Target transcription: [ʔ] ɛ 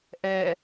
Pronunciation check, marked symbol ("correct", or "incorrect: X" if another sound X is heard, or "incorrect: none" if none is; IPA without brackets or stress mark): correct